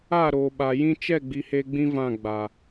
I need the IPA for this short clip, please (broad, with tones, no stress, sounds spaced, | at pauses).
a˦˨ ɾ oː˨ ɓ a˨ j ĩ˦ t͡ʃ ɛ˦˨ ɡ͡b i˨ h e˦ ɡ͡b ĩ˦ v ã˦˨ ɡ͡b a˨